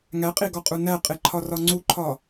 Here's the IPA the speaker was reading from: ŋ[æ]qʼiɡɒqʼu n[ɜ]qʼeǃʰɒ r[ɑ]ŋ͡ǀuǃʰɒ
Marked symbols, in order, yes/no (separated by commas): yes, no, no